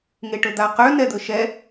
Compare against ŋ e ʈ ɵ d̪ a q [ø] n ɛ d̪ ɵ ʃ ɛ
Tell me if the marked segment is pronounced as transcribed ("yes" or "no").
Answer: yes